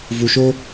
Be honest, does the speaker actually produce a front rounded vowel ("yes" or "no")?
no